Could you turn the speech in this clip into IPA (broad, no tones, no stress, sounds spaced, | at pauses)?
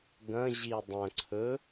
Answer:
ɡ ɐ̃ ʑ i dˤ ɐ̃ ǀʰ ɵ